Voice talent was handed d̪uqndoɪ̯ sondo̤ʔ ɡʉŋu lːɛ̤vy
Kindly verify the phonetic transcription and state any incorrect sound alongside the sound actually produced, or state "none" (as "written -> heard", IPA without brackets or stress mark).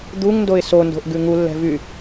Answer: q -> ŋ